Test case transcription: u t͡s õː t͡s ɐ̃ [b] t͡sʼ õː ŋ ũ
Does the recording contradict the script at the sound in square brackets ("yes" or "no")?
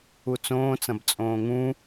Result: no